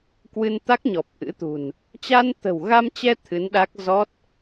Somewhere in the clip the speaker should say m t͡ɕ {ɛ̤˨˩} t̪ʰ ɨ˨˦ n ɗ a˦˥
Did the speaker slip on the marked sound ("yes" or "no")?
yes